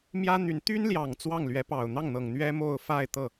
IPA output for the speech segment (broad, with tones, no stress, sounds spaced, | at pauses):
m j ä˥ n̪ y˧˥ n t̪ y˥ n l j ɑ˨˩ ŋ t͡s w ɑ˥˩ ŋ l ɥ ɛ˧˥ p ɑ˨˩ ʊ̯ n̪ ɑ˥˩ ŋ n̪ ɤ˨˩ ŋ n̪ ɥ ɛ˥ m o˥˧ ʊ̯ f a˥˧ ɪ̯ t̪ ɤ˥˩